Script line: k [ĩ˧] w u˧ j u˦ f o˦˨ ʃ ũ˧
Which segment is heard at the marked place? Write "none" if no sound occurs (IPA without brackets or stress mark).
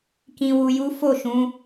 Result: ĩ˧